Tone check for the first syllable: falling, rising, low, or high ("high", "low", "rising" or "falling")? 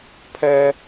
high